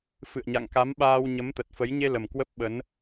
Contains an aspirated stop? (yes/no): no